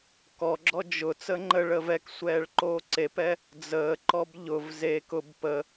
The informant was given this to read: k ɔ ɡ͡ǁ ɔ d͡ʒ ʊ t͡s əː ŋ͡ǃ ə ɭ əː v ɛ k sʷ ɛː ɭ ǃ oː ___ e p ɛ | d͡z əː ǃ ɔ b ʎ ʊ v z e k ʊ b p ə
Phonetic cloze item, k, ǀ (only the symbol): ǀ